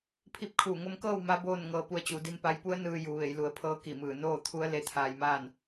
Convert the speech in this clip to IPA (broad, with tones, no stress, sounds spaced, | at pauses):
pʰ i˧ p̚ kʰ uː˧˩ ŋ o˧ m k ɤː˥˨ w m a˧˥ b oː˥˨ n ŋ ɤː˧ p u˧ ə̯ t͡ɕ u˩˧ d i˧ m p a˧˥ j p u˧˥ ə̯ n ɯː˧ j u˩˧ ʋ e˩˧ j l u˩˧ ə̯ pʰ ɤː˧˥ k i˧˩ m ɯː˧˩ n oː˥˨ t̪ʰ u˧˥ ə̯ l e˧˥ t̪ʰ aː˧ j m aː˥˨ n